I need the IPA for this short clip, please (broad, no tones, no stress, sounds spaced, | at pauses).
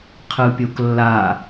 qʰ ɯ pʲ o k lː a